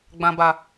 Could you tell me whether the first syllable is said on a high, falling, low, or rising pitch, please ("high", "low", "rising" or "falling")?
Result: low